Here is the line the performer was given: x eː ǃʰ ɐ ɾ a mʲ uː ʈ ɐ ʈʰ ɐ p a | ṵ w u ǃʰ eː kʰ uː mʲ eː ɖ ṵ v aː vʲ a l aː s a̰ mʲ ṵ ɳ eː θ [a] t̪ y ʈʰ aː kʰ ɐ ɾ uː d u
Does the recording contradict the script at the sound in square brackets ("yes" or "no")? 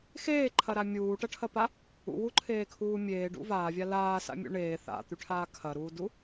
yes